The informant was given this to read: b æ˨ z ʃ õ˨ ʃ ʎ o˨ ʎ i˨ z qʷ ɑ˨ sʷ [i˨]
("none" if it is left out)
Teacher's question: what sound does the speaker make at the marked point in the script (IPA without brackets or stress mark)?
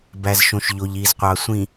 ĩ˨